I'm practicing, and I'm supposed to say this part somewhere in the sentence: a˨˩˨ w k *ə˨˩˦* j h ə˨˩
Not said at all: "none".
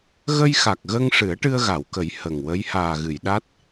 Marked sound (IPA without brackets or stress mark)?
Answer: ə˨˩˦